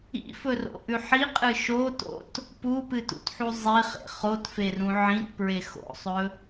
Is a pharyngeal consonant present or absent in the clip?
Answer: present